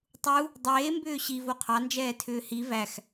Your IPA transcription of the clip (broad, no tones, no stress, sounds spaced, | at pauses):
tˤ u | dˤ eː m b ʏː ɕ i v o qʰ ɑ n d͡ʒ ɛː tʰ ʏː h i v æ x